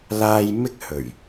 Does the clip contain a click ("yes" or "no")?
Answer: no